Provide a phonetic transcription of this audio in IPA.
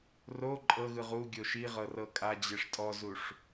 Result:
ro ǃʼɤɣɯʁ uɡʲo ʃi ʁɤrɤkʼad͡ʑeʂ tʼɔzuʂ

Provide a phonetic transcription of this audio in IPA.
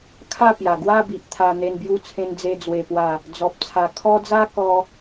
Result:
kʰa˥˧pja˨˩ ɡwa˥˧bi˨ʔt̪ʰa˨˩ n̪e˧nbju˧t͡sʰẽ˧nd͡ze˧ d͡zwe˨˩pwa˨˩ | d͡zɔ˨p̚t͡sʰa˨˩ kʰɔ˧d͡za˧ kɔ˦

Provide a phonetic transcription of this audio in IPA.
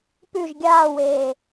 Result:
pʉʒ ɡʲaːweː

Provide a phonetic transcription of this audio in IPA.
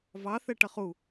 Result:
vɑθɛʈʌχ u

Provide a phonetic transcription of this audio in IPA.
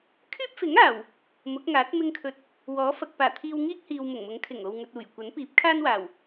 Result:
kʰyː˥p̚fɪ˨˥ŋaː˨˩w | mʊ˨˥k̚ŋaː˨˥t̚ mɪ˧ŋkʰɵ˨t̚ | wɔː˨˥fɐ˨k̚paː˨˩ t̪ʰiː˧wŋiː˥k̚hiː˨w mʊ˨˩ŋmʊ˨˥ŋkʰɪ˨˩ŋ o˨wŋɵ˨t̚uː˨˩jkʷɐ˨˥n piː˨˥p̚kʰaː˥nwaː˨˩w

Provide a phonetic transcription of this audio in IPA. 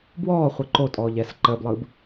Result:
bwɔː χʷɯǃo tʼɔːʎɛːsǃəːblˠɯːb

